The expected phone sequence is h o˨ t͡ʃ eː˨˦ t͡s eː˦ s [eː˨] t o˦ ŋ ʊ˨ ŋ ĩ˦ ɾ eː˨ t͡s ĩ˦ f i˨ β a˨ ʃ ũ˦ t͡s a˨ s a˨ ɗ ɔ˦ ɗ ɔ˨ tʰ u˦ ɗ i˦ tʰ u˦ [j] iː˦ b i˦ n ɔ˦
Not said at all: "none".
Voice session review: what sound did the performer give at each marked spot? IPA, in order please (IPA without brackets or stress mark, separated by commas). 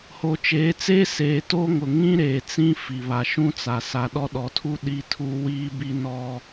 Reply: eː˨, w